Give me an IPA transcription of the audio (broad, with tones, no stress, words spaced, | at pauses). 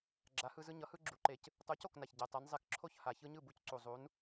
ɡ͡ǁa˨˥hɯ˦zɯ˦ ɲʌ˨˥hɯ˦ɡ͡ǁu˨˩ǃe˨˩c | tˤu˨˥co˥˩kna˨˩ç ɟɛ˨˩tˤɛ˨˥n zˤe˨˥kǁʰo˥˩ç ha˨˩çɯ˦ɲɯ˥˩ bu˦cǀu˨˩zˤu˨˥n